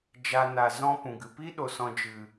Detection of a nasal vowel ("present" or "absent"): present